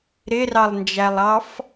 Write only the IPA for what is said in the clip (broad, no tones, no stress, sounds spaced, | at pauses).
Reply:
ɾ ɪ r ɑ lˠ n d͡ʒ æ lˠ ɑ f